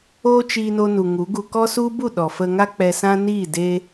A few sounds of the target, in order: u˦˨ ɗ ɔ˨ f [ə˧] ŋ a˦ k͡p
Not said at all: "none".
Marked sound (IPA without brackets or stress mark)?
ə˧